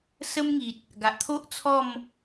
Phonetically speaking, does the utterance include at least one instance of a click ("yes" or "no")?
no